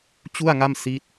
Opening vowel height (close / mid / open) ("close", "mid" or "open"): close